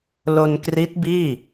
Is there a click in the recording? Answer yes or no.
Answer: no